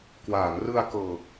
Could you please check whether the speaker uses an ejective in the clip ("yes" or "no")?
no